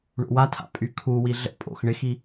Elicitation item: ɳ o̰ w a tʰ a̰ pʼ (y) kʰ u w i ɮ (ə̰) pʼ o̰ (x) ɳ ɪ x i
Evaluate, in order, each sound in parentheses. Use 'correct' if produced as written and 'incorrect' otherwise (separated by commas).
correct, correct, correct